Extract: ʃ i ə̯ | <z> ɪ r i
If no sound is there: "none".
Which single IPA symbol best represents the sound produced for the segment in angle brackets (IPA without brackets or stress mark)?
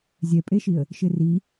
ʃ